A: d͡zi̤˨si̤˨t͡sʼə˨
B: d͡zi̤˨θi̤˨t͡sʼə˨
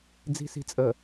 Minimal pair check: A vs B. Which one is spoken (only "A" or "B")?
A